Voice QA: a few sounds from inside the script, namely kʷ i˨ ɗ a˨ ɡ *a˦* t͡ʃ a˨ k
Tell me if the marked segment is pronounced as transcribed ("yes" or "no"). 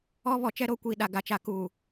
no